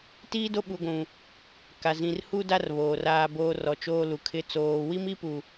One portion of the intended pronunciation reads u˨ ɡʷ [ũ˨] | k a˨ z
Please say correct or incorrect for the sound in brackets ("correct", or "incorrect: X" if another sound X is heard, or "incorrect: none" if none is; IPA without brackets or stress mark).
correct